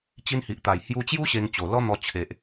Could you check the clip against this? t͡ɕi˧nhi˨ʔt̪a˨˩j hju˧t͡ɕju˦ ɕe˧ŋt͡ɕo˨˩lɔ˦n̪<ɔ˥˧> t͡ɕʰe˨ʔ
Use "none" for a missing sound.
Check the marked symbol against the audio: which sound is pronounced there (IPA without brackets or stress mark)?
ɔ˧